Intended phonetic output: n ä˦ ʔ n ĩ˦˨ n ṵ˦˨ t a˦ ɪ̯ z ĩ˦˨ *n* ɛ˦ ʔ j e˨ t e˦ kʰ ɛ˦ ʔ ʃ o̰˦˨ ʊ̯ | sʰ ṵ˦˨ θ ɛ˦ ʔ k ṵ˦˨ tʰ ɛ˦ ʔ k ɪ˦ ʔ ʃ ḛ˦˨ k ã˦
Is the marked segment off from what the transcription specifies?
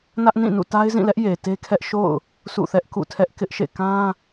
yes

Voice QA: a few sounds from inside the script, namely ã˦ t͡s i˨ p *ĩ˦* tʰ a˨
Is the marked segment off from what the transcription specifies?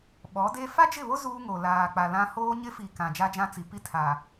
yes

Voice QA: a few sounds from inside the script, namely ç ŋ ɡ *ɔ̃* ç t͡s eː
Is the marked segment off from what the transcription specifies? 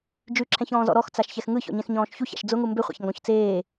no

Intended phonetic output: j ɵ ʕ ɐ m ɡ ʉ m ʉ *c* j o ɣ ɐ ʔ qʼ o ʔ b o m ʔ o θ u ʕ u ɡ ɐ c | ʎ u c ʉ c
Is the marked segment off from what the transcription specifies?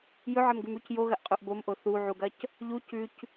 no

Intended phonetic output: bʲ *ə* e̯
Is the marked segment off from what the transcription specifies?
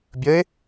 no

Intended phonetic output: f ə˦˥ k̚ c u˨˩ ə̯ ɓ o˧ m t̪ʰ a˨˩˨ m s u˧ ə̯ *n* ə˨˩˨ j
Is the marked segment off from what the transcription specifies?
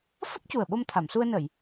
no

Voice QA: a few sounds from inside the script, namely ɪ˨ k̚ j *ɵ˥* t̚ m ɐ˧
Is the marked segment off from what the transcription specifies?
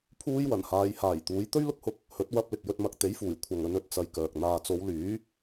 yes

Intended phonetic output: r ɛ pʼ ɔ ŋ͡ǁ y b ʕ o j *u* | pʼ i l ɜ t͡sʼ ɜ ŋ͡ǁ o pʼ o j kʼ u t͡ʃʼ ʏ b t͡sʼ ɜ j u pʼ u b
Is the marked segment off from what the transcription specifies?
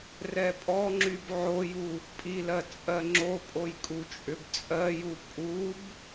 no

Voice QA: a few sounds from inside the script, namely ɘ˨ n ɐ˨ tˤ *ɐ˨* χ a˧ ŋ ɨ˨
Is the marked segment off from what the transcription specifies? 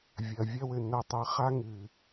no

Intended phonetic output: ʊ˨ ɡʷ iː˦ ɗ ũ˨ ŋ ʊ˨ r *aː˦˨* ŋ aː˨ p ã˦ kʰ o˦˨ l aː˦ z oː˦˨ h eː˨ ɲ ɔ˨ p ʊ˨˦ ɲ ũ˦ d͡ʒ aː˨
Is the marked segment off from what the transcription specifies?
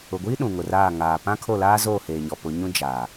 no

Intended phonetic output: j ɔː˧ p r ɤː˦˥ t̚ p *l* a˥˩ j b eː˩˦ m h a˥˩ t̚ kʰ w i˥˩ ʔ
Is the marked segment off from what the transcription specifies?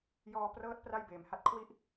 yes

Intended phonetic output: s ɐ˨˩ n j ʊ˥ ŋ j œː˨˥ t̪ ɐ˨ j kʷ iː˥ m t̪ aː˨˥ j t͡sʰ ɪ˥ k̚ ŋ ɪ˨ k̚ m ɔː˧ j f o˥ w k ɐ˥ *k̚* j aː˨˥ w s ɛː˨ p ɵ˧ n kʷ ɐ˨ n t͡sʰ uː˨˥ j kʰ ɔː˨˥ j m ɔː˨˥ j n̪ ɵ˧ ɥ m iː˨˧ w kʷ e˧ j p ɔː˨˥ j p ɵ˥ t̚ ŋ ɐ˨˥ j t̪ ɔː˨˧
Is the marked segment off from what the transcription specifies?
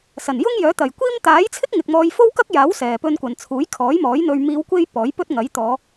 no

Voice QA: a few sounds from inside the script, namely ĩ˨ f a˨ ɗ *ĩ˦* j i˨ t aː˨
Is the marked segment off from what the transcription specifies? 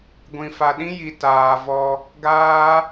no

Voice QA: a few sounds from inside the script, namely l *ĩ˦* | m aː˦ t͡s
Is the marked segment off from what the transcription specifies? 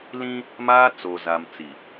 no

